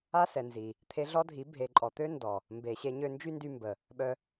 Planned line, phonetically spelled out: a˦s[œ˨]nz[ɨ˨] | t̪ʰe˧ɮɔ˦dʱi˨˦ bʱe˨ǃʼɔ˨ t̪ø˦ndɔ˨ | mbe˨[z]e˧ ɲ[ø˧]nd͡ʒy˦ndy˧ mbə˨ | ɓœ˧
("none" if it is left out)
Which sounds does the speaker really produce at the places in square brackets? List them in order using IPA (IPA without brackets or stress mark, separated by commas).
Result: ɛ˨, i˨, ɕ, ø˧